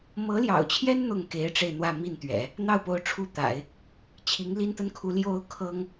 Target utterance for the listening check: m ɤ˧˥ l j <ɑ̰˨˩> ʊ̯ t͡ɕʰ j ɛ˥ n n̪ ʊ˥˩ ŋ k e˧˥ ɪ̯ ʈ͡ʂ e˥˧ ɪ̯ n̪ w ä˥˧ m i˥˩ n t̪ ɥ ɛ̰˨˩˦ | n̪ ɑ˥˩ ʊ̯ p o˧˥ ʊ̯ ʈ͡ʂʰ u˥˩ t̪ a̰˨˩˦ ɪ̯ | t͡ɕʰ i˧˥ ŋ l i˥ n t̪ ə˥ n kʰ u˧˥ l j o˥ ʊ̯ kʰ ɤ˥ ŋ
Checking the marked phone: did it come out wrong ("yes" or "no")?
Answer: no